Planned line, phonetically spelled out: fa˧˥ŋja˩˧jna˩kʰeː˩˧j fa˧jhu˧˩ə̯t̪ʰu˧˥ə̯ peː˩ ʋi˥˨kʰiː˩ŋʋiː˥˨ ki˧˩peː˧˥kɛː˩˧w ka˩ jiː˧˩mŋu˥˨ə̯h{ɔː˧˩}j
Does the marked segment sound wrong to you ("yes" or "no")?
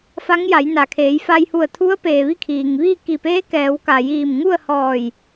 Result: no